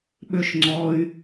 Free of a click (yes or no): no